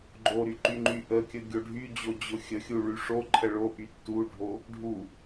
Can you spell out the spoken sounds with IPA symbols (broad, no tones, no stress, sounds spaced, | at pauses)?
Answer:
ɡ͡ǃ o ɾ y ǃ y ŋ͡ǃ y ʔ ə kʲ ə ɡʲ o ɖʱ y d͡ʑ o d͡ʑ ʊ xʲ ə xʲ u ɭ y ʂ o ǃʰ ə ɭ o ʔ y tː u ɖʱ o | ɖʱ u